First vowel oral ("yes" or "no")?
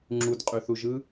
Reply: yes